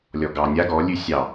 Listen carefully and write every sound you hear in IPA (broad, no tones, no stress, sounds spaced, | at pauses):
lʲ ɔ ɡ ɑ nʲ a ɡ ɔ lʲ ʉ sʲ ɑ